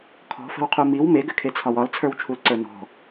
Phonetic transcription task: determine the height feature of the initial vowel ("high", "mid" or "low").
mid